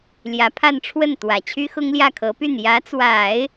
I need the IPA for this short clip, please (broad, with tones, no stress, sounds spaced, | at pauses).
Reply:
l j ä˧˥ pʰ a˥˧ n ʈ͡ʂʰ w ə˥˩ n t̪ w ä˨˩ t͡ɕʰ y˥ x ʊ˥ ŋ l j ä˥˩ kʰ ɤ˧˥ p y˥˩ n j ä˧˥ t͡s w a˨˩˦ ɪ̯